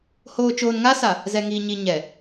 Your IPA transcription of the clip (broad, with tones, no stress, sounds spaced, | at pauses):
h oː˨ t͡ʃ oː˨ n ŋ a˦ s a˨ | z ɛ˨ ŋ iː˨ ɲ i˨ ɲ ɛ˨